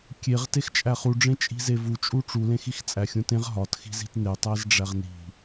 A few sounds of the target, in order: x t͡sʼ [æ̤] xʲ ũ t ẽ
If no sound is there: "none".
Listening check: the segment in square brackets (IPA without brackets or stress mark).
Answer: æ